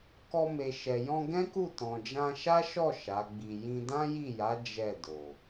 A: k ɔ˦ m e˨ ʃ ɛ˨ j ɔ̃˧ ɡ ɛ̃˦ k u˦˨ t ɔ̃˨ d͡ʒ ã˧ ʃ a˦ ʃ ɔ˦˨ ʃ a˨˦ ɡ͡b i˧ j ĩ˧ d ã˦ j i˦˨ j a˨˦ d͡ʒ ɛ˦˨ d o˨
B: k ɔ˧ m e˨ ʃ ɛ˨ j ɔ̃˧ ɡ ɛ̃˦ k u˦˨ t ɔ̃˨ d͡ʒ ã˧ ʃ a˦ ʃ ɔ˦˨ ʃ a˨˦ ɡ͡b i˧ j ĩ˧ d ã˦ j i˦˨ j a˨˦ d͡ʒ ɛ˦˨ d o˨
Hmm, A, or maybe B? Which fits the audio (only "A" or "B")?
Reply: B